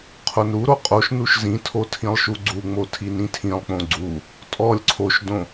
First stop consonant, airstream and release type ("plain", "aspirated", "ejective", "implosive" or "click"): aspirated